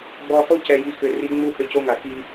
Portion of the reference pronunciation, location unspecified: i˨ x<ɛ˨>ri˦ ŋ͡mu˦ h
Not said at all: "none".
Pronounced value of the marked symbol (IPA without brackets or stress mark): ʏ˨